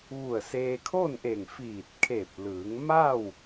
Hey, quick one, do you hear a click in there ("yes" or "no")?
no